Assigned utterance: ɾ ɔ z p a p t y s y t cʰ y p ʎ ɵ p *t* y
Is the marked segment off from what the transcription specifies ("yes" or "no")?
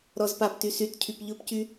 yes